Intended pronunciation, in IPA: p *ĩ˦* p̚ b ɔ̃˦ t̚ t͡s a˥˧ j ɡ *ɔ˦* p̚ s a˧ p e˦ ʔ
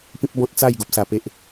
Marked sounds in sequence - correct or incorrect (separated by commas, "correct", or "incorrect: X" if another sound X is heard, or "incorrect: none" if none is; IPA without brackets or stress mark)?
correct, incorrect: o˦